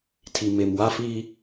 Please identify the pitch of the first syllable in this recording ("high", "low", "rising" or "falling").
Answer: low